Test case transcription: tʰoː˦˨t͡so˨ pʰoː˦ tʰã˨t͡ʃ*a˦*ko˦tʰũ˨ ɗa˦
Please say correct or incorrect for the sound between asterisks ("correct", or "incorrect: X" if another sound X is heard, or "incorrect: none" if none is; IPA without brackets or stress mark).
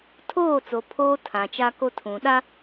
correct